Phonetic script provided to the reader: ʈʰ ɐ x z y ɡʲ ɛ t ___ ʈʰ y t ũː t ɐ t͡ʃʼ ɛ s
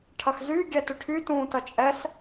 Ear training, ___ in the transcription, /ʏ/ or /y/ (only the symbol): ʏ